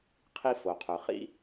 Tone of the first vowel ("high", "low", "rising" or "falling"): high